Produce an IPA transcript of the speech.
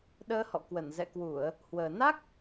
ɗəː˧hɔ̰˧˨ kwə˧˩nzɛ̰˧˨kwu˧˩˨ə̯ | hwəː˨˩ na˦˥k̚

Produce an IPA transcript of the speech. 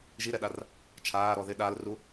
ʒiɾɛɗar | t͡ʃʰaːɾɔ ðɪ ɗaːlru

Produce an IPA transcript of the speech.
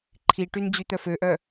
ǃʰiʈyn d͡ʑyt̪œføʔœ

